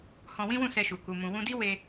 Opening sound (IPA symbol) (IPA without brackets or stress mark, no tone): h